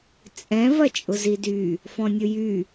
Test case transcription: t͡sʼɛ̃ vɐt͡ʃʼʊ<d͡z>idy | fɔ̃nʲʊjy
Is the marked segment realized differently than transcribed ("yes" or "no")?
yes